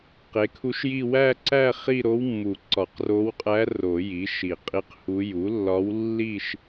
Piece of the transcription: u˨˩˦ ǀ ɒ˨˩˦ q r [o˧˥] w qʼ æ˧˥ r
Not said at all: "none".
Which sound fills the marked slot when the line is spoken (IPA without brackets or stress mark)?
o˧˥